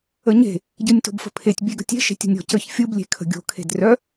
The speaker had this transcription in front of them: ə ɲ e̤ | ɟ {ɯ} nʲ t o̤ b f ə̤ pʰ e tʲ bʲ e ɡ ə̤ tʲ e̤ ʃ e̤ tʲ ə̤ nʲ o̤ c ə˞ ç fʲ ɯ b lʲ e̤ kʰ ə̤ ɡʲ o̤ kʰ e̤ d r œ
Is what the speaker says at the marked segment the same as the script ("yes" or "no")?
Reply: yes